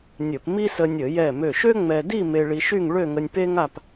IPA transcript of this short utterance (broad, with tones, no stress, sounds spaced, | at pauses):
nʲ ə˧˩˧ p m i˥ s ə˧ nʲ ə˧˩˧ j ɛ˧˩ m ø˧˩ ʃ ø˥ ŋ͡m ɛ˧ d i˥˧ m e˧ ɭ i˧ ʃ y˥˧ ŋ ɭ ø˥˧ ŋ ə˧ nʲ p e˥ ŋ a˥˧ p